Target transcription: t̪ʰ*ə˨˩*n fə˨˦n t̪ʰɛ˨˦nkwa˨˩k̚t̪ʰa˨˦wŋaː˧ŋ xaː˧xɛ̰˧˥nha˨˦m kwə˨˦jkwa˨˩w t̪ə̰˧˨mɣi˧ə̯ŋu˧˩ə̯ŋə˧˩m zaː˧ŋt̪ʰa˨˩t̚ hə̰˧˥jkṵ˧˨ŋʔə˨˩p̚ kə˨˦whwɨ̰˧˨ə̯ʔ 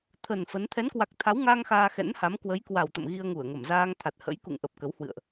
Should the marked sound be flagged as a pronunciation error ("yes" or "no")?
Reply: no